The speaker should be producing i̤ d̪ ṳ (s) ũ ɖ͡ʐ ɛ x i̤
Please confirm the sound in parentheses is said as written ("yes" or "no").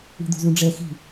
no